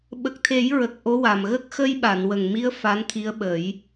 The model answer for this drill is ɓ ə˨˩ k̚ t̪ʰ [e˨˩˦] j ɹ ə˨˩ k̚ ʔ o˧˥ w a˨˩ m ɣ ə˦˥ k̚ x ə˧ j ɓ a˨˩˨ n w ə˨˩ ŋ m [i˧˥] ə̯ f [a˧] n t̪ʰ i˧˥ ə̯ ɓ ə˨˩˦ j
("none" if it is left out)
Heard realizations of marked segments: e˨˩˦, i˧˥, a˧˥

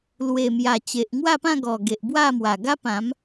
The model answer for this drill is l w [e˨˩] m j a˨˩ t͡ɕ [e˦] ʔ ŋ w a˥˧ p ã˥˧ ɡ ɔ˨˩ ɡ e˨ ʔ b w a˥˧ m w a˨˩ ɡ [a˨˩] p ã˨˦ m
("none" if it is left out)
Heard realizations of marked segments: e˨˩, e˨, a˦

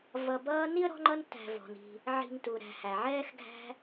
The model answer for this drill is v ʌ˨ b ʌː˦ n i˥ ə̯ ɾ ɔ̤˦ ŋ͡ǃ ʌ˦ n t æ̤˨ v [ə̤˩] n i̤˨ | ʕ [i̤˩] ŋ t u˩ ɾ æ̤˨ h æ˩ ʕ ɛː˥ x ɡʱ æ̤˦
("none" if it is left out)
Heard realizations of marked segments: ɔ̤˩, i̤˨

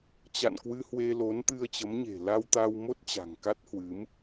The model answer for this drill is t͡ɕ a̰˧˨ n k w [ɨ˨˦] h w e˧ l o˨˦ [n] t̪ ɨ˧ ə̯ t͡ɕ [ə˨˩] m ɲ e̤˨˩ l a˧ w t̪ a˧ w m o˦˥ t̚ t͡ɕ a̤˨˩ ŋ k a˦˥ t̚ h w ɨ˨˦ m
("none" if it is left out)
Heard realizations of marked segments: ɨ˧, n, ə˨˦

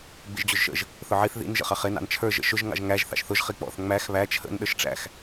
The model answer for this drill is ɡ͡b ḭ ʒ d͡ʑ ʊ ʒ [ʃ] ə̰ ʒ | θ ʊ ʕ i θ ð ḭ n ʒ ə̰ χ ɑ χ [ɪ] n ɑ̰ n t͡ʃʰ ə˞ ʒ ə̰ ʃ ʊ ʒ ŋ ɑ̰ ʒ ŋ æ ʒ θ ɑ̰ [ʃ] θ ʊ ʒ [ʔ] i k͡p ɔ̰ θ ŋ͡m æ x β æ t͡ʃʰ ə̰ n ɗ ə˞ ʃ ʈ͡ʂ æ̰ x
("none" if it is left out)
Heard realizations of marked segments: ʃ, ɪ, ʃ, χ

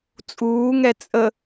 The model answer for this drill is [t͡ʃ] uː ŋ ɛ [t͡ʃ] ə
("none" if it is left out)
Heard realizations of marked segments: t͡sʼ, t͡sʼ

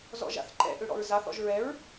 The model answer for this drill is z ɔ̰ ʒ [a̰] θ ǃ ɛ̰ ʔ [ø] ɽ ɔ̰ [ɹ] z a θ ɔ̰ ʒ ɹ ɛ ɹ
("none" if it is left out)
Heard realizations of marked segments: a̰, ø, ɹ

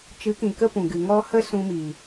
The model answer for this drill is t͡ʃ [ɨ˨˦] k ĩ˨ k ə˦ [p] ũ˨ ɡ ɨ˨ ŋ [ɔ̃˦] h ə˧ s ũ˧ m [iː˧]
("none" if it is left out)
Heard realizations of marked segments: ɨ˨˦, p, ɔ˦, iː˨

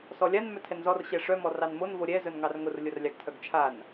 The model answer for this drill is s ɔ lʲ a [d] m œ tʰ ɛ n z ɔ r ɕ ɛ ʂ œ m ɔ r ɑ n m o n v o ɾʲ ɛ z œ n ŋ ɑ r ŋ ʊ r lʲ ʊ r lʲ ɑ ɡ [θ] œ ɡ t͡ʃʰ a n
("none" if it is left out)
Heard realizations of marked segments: n, tʰ

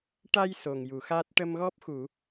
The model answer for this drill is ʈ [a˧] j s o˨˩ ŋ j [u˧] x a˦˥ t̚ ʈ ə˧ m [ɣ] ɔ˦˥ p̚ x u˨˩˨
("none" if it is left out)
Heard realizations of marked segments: a˧, u˨˩˨, ɣ

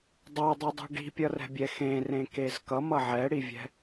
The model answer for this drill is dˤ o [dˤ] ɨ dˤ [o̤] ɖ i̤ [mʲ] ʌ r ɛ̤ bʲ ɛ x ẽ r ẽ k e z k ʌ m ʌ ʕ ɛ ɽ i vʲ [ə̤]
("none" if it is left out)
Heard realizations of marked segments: dˤ, o̤, pʲ, ɛ̤

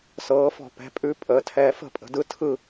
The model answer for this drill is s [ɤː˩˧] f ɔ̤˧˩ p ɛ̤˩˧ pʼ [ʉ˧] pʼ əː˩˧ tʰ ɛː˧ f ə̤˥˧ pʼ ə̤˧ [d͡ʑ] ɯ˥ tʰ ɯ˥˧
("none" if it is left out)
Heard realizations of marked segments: ɤː˩˧, ʉ˧, d

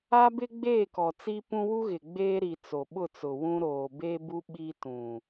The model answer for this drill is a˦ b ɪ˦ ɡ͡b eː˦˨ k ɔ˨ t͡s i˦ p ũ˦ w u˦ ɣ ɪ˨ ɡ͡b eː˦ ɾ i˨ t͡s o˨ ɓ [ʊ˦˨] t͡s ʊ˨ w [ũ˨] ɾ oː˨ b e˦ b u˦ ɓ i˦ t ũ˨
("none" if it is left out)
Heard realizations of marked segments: ʊ˦˨, ũ˦

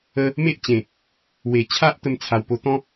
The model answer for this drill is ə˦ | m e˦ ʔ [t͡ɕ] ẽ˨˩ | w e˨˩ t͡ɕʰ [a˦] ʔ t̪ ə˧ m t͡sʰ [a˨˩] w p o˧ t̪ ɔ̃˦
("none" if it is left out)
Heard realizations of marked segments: t͡ɕ, a˦, a˨˩

